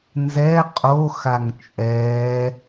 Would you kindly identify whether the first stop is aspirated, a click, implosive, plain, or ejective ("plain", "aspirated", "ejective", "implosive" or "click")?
ejective